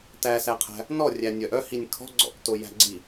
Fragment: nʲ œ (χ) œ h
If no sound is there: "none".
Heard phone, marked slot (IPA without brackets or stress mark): ʔ